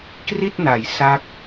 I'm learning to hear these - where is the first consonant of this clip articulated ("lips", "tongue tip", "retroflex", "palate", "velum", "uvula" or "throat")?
velum